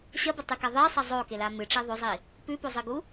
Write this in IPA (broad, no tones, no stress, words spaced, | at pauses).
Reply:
ɕɐbɐtˤʉka ðˤesˤɐ zˤokela mɨʈ͡ʂe ðˤɵzˤi | pʉpozˤɨɡu